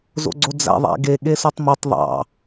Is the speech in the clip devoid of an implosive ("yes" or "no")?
no